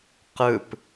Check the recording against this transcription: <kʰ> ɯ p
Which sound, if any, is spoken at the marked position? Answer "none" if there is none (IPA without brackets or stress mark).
q